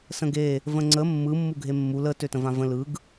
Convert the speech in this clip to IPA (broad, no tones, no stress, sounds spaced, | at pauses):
s ə̃ ɡ e | v ə̃ ŋ͡ǀ ə mː ɯ mː u ɡʱ e mː u l ə t ø t ə̃ v ã v ə̃ l ɯ ɡ